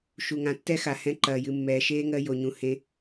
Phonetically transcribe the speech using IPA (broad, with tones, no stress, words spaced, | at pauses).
ʃu˨ŋã˨˦tːɛ˦xa˨ hɛ̃˦ǃɐː˧ jɨ˧mːɛː˧ʃeː˦ ŋɜ˦jo˧ɲũ˧ hẽ˦